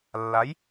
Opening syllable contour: rising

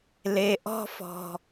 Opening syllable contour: low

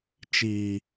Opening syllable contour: low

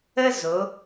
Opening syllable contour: high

